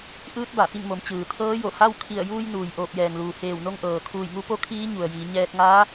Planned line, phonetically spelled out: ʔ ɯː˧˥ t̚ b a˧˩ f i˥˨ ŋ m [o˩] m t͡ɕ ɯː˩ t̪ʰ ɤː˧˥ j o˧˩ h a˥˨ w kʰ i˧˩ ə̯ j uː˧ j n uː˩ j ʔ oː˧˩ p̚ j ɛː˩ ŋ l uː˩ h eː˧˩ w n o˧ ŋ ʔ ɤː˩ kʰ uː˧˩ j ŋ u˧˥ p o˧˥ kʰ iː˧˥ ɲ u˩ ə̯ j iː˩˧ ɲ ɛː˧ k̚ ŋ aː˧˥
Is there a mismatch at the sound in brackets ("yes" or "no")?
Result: yes